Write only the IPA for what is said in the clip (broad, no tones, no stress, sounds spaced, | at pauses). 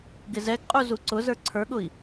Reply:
ɡ ɪ z ɛ ɡ qʼ u z u ǀ ʊ z ə˞ ǀʰ ə˞ ɠ ʊ i̯